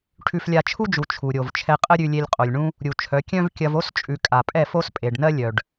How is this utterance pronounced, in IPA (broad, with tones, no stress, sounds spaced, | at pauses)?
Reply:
ʈʰ ʉ˦ f lʲ a˦ t͡ʃʰ u˦ d͡ʒ u˨ t͡ʃʰ u˨ ɾʲ o˨ v t͡ʃʰ ɛ˧ qʼ ə˦ ɾʲ ʉ˧ lʲ e˧ lʲ qʼ o˨ lʲ ɳ ũ˧ | ɾʲ u˨ t͡ʃʰ œ˨˦ kʲ œ̃˦ v kʲ ɐ˧ v o˦ s t͡ʃʼ ʉ˨ kʼ a˨ pʼ ɛ˦˨ f o˦ s pʼ e˨ ɖ n ɜ˦ lʲ œ˨ ɖ